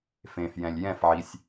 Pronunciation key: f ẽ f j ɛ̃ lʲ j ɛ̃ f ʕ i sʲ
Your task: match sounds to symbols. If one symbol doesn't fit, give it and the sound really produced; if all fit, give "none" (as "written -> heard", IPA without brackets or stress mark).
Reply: none